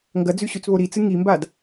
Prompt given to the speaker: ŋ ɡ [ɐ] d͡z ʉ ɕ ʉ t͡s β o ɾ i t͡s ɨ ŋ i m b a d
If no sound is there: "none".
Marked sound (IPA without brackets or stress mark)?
ɐ